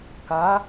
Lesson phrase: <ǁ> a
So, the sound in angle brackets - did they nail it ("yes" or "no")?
no